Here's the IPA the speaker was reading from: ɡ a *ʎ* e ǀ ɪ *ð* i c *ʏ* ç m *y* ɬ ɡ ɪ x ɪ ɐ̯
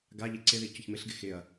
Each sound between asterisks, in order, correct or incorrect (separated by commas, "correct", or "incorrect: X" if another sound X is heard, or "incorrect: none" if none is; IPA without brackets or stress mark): correct, correct, correct, incorrect: ɪ